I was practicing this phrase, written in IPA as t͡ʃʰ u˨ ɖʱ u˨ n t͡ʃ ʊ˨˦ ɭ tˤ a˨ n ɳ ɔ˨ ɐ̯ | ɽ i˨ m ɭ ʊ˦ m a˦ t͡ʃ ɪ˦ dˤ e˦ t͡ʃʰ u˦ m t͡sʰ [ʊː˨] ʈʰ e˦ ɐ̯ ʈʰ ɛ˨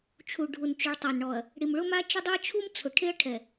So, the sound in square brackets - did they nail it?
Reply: no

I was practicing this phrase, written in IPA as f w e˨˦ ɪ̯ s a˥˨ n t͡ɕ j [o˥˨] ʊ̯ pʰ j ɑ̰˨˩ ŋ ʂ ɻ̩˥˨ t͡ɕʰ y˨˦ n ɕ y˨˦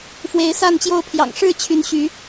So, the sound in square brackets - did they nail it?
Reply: yes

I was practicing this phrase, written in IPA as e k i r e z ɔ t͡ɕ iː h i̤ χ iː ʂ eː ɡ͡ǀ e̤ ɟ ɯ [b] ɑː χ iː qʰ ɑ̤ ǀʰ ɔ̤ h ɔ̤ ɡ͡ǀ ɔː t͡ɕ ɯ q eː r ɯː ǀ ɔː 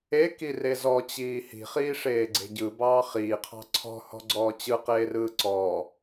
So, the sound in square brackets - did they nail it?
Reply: yes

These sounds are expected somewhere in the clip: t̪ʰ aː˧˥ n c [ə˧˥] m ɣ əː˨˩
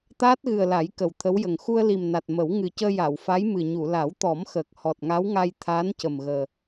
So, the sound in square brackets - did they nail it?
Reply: no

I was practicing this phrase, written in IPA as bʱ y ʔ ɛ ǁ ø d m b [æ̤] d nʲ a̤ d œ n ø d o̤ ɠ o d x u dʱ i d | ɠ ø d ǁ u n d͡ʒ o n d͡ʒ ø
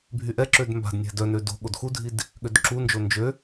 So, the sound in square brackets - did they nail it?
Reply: no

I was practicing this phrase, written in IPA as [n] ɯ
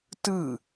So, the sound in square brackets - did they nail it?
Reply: no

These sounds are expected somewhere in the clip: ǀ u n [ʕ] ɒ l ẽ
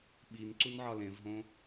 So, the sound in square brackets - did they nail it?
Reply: yes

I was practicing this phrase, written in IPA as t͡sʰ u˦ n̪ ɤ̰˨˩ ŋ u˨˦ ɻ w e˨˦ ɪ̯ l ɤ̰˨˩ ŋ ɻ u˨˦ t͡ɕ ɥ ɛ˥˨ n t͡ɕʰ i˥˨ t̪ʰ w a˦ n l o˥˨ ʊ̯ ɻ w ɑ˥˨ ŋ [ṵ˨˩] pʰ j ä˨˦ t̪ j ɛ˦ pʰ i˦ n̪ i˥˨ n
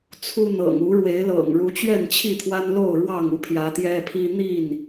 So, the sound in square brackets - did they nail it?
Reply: no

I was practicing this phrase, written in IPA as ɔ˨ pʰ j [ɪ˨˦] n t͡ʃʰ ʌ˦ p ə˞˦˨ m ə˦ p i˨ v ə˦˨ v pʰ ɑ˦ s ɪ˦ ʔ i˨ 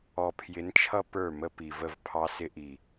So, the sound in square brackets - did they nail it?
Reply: yes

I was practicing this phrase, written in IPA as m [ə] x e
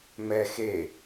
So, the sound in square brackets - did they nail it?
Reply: no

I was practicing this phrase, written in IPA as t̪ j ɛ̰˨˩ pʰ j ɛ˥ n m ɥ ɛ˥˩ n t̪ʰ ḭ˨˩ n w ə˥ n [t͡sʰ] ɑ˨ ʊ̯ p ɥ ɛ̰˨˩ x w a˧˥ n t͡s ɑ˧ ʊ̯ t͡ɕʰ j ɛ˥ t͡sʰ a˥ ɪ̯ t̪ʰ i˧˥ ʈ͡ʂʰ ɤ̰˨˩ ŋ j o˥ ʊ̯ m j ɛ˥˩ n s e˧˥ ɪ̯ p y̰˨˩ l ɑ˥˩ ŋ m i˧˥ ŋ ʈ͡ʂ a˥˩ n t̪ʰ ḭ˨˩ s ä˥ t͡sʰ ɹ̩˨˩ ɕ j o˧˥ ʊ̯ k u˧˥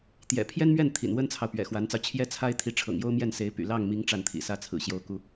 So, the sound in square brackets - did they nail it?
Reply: yes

